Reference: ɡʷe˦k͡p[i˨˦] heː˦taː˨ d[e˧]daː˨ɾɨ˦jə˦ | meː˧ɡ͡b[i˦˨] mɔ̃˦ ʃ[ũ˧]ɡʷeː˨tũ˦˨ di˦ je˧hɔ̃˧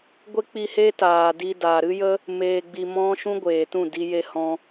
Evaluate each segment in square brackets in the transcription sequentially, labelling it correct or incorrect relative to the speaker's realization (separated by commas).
incorrect, incorrect, incorrect, incorrect